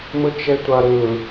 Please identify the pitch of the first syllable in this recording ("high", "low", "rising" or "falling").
low